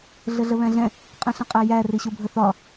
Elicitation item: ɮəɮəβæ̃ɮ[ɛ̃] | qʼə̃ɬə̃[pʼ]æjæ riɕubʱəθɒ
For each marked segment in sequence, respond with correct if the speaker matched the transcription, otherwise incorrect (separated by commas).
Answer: correct, incorrect